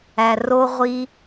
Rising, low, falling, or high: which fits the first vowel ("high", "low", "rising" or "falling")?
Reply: low